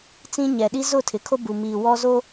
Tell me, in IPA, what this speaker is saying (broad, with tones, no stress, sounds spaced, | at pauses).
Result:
t͡s ĩ˦ ɲ ɛ˨ ɗ i˦ z ʊ˦˨ tʰ ɪ˨ kʰ o˦ b u˨ m iː˨ w ɔ˦ z o˦